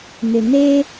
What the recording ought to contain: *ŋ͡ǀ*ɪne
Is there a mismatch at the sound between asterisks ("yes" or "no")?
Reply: yes